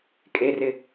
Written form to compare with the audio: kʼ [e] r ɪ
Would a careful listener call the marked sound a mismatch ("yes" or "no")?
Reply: no